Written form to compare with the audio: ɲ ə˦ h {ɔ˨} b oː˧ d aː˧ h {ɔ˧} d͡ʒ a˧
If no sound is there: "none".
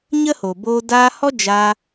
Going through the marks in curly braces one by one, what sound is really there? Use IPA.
o˨, ɔ˦

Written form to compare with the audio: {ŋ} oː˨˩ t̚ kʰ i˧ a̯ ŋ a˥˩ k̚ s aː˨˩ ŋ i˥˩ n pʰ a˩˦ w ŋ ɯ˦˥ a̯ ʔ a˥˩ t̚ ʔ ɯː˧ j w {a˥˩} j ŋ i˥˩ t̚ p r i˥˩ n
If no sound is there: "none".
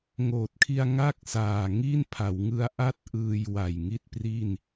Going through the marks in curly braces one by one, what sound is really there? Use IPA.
ŋ, a˨˩

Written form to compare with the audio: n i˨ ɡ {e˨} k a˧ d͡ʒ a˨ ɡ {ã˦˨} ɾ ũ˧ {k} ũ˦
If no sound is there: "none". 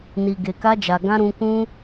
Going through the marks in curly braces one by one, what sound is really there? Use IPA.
e˨, ã˧, k

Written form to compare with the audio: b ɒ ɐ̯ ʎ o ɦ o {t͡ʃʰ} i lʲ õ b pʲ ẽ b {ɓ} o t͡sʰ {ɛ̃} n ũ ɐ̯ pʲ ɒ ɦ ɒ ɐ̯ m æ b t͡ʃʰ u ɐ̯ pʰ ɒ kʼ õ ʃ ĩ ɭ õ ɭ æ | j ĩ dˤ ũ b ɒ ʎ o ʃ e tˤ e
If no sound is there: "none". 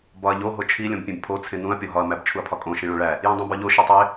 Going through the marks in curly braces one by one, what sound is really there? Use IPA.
t͡ʃʰ, pʰ, ẽ

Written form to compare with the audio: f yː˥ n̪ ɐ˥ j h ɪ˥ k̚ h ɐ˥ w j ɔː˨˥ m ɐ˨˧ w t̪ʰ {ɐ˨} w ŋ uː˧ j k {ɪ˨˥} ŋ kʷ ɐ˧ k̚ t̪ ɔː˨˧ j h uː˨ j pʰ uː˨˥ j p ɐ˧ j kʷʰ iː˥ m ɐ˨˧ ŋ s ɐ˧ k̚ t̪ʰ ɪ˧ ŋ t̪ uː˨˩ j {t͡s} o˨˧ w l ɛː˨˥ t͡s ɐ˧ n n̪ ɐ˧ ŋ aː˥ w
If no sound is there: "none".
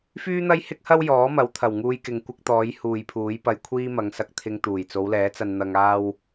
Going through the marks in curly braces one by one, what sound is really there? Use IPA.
ɐ˨˩, ɪ˨, t͡s

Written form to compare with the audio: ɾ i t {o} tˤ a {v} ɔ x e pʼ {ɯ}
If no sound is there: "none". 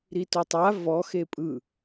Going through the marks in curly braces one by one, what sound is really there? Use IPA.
o, v, ɯ

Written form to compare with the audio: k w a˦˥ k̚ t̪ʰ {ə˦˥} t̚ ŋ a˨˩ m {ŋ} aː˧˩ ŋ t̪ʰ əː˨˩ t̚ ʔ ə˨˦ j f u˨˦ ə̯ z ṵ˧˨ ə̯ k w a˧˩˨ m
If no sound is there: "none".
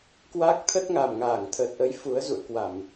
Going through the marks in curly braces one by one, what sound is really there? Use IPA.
ə˦˥, ŋ

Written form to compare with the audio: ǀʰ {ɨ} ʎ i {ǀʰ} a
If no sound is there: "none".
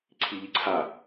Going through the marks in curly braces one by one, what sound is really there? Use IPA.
i, ǀʰ

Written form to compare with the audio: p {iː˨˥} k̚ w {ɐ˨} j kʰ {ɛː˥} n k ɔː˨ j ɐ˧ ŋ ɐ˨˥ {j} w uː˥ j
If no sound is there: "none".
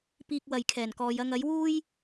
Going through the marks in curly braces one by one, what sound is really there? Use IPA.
iː˧, ɐ˨, ɛː˨˩, j

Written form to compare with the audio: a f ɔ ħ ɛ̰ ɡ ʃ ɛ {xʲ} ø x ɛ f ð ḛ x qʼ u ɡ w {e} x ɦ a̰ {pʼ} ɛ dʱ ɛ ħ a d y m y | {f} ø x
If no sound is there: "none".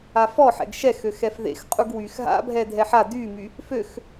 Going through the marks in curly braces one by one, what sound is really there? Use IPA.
x, y, bʱ, f

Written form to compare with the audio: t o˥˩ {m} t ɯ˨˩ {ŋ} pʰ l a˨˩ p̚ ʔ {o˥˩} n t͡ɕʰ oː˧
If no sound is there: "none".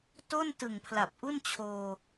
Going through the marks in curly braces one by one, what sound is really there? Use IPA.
n, ŋ, u˥˩

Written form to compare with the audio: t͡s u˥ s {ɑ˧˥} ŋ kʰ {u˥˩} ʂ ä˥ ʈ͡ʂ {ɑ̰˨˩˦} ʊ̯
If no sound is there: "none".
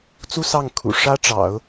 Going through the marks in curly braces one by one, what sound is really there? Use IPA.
ɑ˥˩, ṵ˨˩, ɑ̰˨˩˦

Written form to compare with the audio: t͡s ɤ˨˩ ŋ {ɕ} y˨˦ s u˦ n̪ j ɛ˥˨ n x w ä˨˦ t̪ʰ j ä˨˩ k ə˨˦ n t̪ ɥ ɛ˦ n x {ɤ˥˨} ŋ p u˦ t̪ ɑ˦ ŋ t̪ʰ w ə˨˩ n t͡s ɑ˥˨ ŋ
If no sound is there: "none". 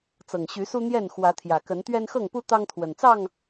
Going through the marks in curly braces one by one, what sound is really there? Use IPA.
ɕ, ɤ˥˨

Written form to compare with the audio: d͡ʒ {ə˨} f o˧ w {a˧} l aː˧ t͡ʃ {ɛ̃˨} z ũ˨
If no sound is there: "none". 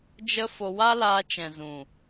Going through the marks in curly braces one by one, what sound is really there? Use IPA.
ə˦, a˦, ɛ̃˨

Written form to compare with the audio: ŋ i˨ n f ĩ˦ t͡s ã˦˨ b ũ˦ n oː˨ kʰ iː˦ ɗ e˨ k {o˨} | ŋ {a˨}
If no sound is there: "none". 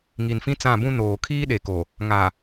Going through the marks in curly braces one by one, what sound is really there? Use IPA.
o˨, a˨

